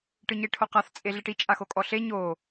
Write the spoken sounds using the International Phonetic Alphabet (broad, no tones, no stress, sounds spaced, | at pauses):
ʈ ɯ ɲ e ʈʰ o q a θ t͡sʼ e ɮ e ʈ i t͡ʃʼ a x o kʼ ɔ ɬ e ɲ o